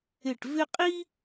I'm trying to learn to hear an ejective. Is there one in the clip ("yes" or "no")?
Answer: yes